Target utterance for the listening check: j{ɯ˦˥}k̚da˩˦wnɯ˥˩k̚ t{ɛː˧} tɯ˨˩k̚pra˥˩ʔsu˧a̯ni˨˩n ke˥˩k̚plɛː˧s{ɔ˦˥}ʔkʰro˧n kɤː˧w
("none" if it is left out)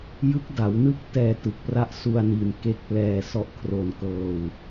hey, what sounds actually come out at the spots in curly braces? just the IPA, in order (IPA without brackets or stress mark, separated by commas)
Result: ɯ˦˥, ɛː˧, ɔ˥˩